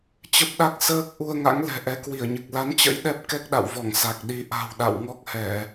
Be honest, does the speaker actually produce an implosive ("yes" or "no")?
yes